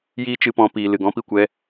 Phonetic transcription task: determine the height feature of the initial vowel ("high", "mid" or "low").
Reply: high